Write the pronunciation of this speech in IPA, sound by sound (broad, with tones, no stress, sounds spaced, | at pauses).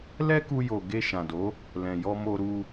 l ɛ˦ k u˧ j o˨ ɡ e˧ ʃ ã˨ d o˨˦ | l ɛ̃˨ j ɔ˧ m o˧ ɾ u˧